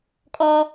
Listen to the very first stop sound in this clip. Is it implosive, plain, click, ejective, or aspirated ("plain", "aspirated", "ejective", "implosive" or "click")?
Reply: ejective